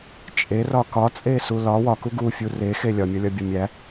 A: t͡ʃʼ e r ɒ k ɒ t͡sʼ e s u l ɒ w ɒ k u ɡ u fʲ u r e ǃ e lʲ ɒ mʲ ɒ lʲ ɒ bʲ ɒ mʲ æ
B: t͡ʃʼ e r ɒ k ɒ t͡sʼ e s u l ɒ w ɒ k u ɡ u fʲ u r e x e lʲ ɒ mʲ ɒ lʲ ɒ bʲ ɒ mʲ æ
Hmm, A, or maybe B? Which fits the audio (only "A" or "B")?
B